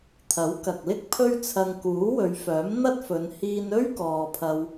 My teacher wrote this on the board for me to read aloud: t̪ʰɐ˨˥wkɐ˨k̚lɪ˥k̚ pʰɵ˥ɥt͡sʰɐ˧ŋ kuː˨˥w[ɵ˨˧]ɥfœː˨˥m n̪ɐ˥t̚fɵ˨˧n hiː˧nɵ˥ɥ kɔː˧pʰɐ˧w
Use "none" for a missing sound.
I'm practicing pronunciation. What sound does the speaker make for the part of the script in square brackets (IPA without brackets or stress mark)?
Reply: ɵ˨˧